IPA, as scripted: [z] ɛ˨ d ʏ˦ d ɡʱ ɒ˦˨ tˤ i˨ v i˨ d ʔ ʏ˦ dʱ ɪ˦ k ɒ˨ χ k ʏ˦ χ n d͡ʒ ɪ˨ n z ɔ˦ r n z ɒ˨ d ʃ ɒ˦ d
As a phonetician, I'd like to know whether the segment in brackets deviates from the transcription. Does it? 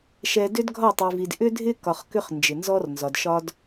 yes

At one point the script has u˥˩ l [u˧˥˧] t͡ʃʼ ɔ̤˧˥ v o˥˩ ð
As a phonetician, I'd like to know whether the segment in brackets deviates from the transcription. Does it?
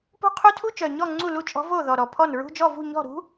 yes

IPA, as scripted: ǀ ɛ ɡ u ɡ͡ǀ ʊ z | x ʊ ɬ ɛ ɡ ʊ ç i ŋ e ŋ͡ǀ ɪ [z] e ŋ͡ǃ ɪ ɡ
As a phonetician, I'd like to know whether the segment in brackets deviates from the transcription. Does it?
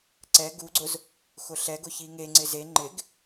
no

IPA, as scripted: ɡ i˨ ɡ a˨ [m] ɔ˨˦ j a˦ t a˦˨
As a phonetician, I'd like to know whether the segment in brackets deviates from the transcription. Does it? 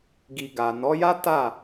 yes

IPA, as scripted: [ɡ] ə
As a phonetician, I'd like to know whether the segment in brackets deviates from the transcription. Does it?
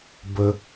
yes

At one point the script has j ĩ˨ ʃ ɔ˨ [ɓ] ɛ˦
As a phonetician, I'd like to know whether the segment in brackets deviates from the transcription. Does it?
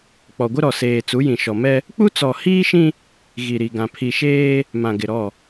yes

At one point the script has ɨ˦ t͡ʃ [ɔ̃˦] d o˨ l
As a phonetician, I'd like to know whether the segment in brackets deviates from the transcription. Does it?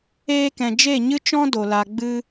no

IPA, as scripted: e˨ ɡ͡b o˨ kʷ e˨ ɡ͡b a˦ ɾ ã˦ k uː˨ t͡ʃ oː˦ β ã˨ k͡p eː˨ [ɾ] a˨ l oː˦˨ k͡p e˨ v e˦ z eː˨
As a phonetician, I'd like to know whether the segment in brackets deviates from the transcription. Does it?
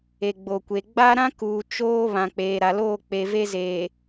no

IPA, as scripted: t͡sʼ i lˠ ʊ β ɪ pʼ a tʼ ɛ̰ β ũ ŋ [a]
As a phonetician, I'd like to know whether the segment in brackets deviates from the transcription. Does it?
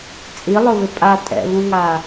no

